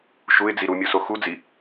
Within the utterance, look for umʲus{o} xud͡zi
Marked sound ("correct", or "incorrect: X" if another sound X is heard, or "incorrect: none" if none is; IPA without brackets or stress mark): correct